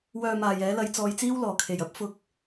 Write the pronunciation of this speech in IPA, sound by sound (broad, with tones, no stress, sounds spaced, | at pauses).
w œː˧ m aː˨ j ɛː˨˥ l ɐ˧ j t͡s ɔː˧ j t͡s iː˥ w l ɔː˨˩ kʰ e˨˩ j ɐ˨˥ p̚ f ʊ˧ k̚